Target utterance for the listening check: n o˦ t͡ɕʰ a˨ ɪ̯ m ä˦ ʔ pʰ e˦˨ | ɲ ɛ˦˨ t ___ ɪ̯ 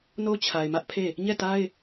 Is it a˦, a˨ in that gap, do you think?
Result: a˦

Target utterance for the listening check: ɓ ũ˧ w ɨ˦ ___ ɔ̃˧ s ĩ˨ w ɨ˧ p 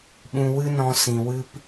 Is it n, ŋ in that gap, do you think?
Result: n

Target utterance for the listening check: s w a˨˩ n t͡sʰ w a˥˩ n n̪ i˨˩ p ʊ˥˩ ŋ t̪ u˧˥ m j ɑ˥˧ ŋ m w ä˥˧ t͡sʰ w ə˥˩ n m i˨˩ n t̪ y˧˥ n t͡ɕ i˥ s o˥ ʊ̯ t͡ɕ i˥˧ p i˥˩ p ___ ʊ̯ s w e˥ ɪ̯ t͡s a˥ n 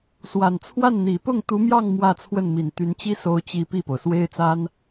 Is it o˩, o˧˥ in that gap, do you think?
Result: o˩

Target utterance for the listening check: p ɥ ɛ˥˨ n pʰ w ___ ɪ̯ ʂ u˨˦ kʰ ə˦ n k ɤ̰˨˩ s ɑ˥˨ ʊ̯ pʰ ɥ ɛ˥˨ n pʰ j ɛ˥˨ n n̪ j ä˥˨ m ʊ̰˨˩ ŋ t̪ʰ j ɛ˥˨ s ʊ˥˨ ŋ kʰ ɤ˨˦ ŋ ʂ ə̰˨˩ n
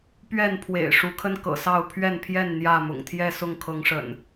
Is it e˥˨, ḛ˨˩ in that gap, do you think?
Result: ḛ˨˩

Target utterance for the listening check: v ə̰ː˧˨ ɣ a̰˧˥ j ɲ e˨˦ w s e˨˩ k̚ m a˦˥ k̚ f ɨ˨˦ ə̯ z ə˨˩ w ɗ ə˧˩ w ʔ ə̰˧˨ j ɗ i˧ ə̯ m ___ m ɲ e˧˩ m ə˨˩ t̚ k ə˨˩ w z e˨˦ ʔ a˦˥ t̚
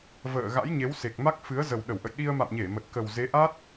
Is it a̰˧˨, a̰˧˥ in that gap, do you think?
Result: a̰˧˨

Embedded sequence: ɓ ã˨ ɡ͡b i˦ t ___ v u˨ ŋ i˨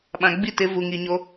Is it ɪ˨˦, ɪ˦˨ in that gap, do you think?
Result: ɪ˨˦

